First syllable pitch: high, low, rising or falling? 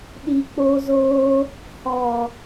low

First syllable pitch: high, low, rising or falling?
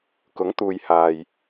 rising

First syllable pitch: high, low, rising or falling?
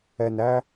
low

